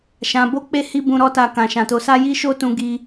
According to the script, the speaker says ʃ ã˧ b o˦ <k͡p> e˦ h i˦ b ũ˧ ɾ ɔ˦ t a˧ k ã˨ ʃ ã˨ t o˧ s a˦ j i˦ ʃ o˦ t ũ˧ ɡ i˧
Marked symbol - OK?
yes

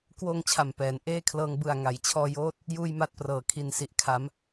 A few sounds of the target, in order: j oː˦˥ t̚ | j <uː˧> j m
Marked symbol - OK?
no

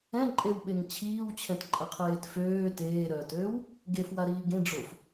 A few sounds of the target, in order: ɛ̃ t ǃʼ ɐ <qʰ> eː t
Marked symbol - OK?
yes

